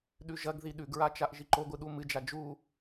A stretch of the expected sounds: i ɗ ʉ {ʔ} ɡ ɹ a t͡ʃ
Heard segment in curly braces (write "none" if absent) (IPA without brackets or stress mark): none